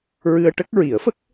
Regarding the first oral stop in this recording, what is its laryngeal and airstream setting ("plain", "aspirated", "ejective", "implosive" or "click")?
plain